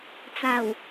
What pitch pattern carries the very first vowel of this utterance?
low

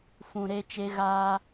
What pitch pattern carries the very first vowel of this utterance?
low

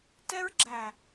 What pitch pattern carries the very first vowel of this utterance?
high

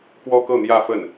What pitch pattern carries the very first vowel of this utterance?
high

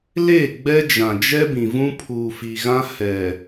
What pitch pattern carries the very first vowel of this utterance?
falling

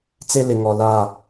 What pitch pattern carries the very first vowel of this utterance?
high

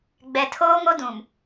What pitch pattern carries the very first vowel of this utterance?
low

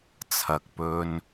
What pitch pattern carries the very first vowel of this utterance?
low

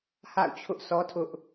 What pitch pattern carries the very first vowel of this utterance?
falling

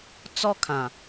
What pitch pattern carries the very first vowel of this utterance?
high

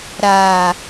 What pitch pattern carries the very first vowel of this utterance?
low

